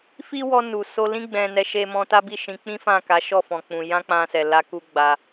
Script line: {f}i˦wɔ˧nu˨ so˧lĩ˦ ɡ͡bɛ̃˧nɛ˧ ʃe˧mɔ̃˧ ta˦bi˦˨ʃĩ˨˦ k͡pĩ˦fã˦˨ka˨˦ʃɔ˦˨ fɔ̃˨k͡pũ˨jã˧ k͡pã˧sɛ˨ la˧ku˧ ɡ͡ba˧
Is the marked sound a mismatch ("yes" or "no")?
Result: no